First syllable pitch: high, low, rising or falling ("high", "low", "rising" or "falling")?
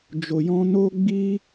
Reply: low